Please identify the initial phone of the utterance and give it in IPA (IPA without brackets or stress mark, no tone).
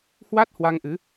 h